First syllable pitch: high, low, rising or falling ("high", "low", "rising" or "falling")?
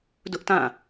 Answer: high